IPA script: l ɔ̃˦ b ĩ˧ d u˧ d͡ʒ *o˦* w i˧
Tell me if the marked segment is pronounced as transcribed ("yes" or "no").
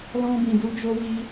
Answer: no